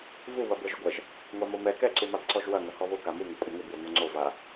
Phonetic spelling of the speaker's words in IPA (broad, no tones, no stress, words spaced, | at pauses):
vu βɐbəʒʊɡʷɐʒ | ŋʷamomɛ kɛǀumab ǀɔʒwɐ ŋɐhɔβʊ kamuŋɐ kʷʼɐŋʊbwʊ ŋoŋ͡ǀova